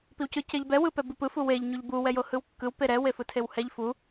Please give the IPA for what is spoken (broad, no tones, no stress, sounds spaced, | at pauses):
p i w c ɯ c e ʎ b ɛ w ɯ p ɛ b i p ɯ f u w e ʎ ɲ u ʎ b u w ɛ j o h ɯ w kː ɯ w p e ɾ ɛ w e f ɯ tʰ e w h ɛ ʎ f u